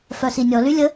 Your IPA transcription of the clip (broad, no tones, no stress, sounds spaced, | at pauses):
f œ s i nʲ ɔ l y lʲ ə